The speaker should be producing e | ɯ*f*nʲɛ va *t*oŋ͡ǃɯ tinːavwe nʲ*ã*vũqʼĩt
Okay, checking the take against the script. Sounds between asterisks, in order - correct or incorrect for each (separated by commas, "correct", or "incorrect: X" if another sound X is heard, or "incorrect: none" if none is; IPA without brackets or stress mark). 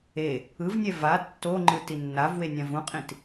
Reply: incorrect: v, incorrect: tː, correct